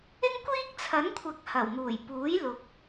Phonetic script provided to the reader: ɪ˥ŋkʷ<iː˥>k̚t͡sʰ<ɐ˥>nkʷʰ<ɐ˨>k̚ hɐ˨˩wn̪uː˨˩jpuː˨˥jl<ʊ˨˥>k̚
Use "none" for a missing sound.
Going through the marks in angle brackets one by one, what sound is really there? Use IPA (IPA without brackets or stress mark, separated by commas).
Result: iː˥, ɐ˨˥, ɐ˨˥, ʊ˨